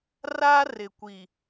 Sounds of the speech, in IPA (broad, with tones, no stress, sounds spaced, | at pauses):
r a˦ r ɪ˨ kʷ i˨